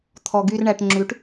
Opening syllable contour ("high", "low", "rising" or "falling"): low